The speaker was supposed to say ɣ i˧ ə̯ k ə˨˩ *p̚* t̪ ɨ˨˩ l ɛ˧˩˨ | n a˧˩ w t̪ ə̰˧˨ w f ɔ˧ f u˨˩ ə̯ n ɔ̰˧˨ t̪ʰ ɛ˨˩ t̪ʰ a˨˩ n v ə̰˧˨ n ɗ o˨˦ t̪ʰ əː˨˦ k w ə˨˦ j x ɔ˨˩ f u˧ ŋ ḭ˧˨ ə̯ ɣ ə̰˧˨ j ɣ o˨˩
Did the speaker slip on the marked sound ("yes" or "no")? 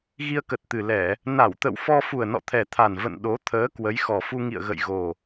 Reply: yes